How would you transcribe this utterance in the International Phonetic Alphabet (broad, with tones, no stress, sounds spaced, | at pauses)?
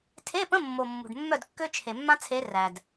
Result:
tʰ e˧˥˧ p ə̃˧˥˧ mː o˨ mː ṳ˨ ɖ mː œ˥˨ d kː ø˥ t͡ʃʰ e˨ mː ã˥ t͡sʰ e˧˥ r æ˨ d